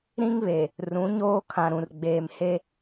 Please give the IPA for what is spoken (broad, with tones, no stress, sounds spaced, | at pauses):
ɾ ĩ˦ ŋ β e˨ | r ũ˨˦ ɲ oː˦ kʰ ã˨ ɾ ũ˨ r ɡ͡b eː˨ m h e˦